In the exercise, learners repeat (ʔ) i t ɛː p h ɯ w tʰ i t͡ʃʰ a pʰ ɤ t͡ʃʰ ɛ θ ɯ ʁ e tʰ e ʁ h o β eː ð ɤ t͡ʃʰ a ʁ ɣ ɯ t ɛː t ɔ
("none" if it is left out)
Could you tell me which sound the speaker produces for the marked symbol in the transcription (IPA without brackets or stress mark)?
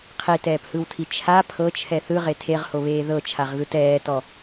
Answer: qʰ